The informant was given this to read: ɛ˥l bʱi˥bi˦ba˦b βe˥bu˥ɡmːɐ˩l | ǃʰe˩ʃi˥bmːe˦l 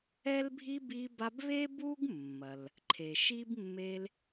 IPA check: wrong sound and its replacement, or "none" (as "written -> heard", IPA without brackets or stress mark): none